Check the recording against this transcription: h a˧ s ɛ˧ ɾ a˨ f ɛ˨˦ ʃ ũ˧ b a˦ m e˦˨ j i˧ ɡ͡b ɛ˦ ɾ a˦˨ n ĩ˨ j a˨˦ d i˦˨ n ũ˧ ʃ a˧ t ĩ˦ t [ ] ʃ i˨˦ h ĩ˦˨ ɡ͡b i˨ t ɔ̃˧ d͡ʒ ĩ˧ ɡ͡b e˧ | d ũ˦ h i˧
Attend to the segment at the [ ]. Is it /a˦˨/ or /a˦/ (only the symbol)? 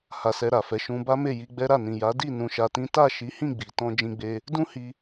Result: a˦˨